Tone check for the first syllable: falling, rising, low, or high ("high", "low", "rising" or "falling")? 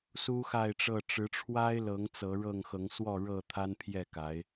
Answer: high